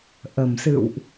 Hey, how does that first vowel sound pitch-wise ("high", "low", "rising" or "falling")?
low